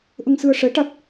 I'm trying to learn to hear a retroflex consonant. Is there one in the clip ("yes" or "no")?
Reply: yes